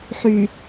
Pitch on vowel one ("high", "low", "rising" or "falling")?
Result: low